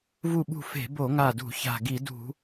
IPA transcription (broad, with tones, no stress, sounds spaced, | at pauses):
v u˧˩ ɓ ṳ˧˩ f e̤˧˩˧ b o˧˩˧ ŋ a˧˩ d ṳ˧˩˧ ç a̤˧˩ ɡ i˧˩˧ d ṳ˧˩˧